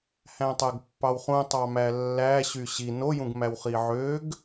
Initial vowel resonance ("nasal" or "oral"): nasal